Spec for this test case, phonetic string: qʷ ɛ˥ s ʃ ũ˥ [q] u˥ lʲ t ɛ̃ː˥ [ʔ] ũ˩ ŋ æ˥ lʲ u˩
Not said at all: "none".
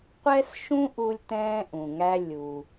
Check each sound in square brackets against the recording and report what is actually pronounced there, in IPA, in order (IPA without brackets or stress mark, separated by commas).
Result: ʔ, ʔ